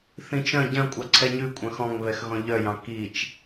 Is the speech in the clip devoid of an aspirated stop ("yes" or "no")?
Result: no